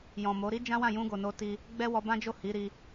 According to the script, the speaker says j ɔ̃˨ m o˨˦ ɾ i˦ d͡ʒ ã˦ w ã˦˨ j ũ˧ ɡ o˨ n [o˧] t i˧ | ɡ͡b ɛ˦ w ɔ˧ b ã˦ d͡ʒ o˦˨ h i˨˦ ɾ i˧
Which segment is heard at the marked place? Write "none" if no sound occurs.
o˧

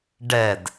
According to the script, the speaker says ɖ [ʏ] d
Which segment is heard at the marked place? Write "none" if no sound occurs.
ɛ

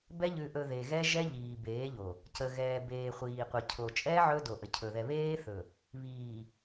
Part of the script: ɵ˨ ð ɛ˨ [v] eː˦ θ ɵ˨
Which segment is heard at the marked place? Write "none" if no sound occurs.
β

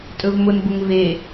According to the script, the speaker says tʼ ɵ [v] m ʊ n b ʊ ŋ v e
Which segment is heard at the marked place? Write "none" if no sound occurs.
v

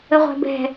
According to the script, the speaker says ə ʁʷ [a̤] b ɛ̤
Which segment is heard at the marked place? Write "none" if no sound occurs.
æ̤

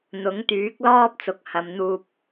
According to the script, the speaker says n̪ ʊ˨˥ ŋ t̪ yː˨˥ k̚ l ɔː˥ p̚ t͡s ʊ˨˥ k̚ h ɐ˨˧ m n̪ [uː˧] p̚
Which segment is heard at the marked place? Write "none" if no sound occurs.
uː˧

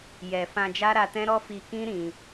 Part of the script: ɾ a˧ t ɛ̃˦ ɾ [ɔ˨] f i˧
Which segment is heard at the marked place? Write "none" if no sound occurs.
ɔ˦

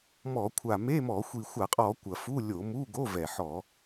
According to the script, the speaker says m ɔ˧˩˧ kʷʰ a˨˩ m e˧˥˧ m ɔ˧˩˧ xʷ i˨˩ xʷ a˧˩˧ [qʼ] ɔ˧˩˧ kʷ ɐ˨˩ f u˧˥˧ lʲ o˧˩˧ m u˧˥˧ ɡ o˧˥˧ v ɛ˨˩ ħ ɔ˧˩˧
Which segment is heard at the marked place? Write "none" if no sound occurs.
qʼ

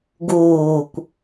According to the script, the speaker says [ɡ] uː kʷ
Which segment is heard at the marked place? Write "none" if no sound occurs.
ɡ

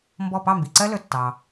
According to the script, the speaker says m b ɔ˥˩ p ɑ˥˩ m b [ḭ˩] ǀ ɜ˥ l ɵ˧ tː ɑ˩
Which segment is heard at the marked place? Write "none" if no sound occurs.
i˩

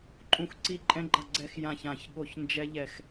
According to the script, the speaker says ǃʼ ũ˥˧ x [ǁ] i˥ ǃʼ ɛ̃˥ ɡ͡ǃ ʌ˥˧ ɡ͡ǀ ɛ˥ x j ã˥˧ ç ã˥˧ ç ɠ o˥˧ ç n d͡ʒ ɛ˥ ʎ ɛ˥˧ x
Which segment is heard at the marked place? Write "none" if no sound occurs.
ǀ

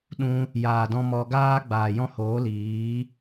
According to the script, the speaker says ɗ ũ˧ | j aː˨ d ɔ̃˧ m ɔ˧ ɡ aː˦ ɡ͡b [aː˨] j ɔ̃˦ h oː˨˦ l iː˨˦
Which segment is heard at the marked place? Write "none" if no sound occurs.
aː˨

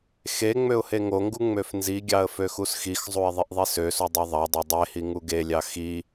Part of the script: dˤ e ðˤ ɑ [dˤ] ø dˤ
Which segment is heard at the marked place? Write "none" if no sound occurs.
dˤ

